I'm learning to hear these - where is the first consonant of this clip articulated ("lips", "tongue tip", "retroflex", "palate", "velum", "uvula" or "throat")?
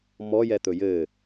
lips